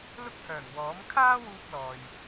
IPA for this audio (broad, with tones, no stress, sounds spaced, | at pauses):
l ʊ˥ k̚ h œː˨˩ ŋ w ɔː˨˥ m kʰ aː˥ w uː˧ k̚ l ɔː˨ j